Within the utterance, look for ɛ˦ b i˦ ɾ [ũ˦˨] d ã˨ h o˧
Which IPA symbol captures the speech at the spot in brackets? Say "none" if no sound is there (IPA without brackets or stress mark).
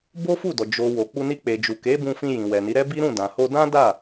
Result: ũ˦˨